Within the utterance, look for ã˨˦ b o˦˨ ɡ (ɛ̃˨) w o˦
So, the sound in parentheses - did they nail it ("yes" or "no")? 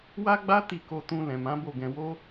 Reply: no